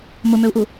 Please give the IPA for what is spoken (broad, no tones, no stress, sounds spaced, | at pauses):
m ʊ m ø u̯ ʔ u